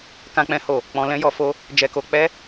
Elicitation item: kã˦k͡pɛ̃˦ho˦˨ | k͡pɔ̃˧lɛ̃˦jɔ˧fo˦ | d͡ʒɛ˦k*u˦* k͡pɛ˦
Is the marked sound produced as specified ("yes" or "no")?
no